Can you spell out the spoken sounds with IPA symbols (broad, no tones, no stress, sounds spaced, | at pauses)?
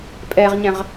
pʼ ɛ ʁ ɲ ɛ̃ ʁ